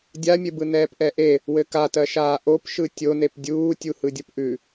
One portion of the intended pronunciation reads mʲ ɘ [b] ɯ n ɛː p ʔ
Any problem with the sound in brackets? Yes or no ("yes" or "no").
no